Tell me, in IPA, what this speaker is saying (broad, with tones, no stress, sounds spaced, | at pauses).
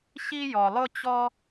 ɕ i˥ j ɔ˩ lˠ ʊ˥ t͡ɕ ɔ˥